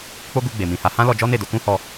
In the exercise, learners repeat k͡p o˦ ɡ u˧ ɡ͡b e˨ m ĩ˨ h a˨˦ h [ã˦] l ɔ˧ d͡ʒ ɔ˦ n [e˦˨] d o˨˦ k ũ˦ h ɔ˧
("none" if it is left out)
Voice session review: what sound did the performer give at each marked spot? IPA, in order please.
ã˦, e˦˨

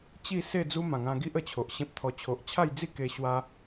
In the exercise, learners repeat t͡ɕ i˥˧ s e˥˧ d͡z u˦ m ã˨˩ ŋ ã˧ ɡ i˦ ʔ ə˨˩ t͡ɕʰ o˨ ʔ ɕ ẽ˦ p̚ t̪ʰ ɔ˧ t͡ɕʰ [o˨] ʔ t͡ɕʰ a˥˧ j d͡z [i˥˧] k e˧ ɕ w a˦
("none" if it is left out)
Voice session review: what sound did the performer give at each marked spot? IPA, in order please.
o˨, i˥˧

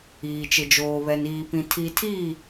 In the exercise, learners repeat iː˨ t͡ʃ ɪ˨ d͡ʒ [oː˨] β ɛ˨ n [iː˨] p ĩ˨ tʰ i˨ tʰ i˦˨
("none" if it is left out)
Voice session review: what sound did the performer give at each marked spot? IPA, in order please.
oː˨, iː˨

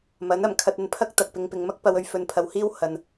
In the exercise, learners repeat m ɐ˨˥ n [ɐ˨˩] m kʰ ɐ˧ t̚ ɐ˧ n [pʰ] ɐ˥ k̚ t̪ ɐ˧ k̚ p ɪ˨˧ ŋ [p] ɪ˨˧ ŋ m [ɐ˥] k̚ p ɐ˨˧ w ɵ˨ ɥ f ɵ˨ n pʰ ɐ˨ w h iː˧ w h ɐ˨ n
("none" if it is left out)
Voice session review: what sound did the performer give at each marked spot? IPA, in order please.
ɐ˨˩, pʰ, p, ɐ˥

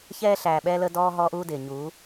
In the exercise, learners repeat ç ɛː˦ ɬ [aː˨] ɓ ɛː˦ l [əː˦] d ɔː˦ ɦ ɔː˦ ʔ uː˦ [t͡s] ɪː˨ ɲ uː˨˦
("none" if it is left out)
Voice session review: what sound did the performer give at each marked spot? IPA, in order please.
æː˨, əː˦, d

